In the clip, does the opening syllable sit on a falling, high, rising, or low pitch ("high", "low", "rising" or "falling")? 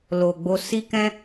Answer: low